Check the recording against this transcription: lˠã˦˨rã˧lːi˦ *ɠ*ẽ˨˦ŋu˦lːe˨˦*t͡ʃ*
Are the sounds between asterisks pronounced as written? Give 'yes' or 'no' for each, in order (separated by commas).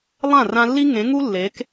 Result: no, no